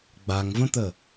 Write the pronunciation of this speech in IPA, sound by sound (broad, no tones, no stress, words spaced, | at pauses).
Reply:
ɡ͡baŋvə̃t̪ə